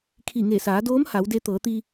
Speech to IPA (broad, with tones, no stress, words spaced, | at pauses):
kʰi˧˩ŋe˧˩saː˩˧doː˧˥m ha˩˧wde˧t̪ɤː˩˧t̪i˧